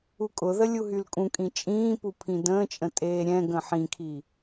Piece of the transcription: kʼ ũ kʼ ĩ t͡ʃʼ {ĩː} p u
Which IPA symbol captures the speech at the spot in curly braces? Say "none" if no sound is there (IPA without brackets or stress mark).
ĩː